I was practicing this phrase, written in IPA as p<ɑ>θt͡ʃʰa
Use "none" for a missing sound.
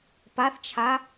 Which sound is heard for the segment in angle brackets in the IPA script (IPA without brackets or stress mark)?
a